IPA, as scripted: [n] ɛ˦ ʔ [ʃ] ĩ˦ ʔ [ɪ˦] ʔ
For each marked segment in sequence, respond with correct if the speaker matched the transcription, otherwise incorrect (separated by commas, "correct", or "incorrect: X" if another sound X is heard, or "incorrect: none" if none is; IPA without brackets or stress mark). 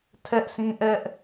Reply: incorrect: tʰ, incorrect: s, incorrect: ɛ˦